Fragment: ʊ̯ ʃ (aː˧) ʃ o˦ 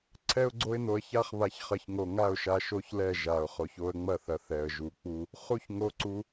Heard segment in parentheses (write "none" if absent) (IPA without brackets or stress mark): a˧